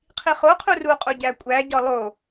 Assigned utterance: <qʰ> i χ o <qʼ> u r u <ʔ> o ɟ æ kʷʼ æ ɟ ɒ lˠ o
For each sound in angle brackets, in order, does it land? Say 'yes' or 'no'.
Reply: yes, no, no

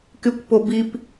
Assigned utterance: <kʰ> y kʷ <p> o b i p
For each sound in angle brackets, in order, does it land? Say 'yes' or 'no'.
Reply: no, yes

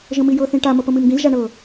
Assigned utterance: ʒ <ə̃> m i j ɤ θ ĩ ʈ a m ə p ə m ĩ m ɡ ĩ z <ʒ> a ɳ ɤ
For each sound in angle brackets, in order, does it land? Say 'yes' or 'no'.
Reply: yes, yes

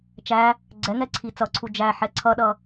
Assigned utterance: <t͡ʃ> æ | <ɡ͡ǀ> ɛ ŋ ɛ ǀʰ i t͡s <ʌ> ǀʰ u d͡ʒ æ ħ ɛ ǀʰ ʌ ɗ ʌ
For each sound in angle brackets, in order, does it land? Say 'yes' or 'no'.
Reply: yes, yes, yes

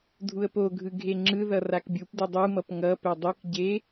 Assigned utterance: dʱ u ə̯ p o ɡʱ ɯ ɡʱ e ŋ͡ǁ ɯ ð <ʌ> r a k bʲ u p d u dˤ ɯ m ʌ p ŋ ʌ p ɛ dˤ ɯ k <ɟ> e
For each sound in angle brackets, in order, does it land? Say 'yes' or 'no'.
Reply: yes, yes

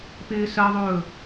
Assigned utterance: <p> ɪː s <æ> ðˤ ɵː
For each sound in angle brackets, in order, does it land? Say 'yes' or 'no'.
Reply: yes, no

